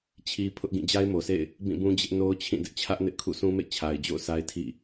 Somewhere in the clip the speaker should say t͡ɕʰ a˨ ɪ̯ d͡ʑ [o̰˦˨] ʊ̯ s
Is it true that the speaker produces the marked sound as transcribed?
yes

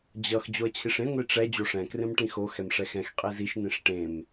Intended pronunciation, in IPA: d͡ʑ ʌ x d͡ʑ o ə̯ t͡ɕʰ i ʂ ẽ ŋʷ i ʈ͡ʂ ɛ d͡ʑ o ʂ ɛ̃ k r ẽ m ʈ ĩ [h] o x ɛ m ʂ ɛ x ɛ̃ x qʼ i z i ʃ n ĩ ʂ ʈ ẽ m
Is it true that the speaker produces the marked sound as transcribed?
no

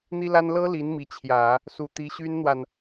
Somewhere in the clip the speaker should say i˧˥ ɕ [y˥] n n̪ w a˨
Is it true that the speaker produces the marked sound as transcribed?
yes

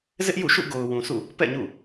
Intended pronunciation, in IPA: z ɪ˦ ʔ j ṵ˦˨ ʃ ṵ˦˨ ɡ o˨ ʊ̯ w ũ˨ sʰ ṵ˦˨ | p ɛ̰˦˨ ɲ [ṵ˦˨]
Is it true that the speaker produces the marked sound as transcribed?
yes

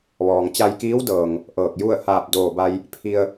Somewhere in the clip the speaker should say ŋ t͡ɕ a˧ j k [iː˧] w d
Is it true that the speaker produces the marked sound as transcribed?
no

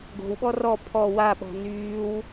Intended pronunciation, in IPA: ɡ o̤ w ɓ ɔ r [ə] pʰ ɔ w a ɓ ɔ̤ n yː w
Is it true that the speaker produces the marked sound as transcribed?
no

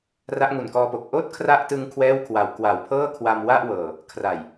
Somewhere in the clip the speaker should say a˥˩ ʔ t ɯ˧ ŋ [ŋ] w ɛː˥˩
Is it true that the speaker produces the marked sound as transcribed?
no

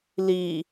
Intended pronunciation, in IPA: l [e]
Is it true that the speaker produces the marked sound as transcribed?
no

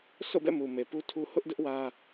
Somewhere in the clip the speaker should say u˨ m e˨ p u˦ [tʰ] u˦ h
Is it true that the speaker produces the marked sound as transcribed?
yes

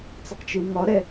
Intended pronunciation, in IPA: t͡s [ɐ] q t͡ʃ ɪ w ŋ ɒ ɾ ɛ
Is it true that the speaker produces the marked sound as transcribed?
yes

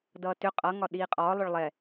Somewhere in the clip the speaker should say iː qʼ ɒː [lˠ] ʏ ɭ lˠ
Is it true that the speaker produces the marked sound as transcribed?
yes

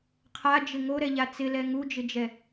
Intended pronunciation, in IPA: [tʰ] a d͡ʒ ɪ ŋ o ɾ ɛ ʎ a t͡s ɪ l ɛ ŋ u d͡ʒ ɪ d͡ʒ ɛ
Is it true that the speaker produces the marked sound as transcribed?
no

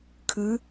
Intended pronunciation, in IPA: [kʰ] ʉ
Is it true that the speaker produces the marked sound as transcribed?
yes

